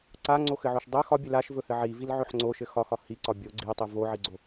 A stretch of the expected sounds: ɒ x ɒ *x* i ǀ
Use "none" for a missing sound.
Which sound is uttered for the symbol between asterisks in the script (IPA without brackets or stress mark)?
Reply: h